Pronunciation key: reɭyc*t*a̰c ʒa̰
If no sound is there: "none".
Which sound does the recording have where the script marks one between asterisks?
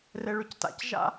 t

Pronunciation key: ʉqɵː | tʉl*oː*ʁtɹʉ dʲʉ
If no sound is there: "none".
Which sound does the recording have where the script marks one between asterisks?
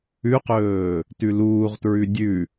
uː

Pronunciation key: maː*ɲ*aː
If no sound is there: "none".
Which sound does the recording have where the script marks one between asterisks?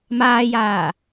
j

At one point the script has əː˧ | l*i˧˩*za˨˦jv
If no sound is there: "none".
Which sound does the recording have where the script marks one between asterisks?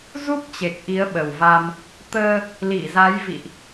i˧˩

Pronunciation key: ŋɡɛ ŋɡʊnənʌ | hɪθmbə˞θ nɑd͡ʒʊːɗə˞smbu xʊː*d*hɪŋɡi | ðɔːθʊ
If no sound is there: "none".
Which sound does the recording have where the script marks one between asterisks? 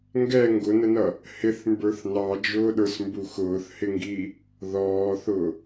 θ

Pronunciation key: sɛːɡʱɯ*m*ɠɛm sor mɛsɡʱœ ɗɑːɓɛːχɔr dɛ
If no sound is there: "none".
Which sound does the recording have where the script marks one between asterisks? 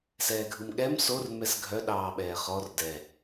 m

